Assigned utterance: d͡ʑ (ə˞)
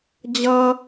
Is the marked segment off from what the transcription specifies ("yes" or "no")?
yes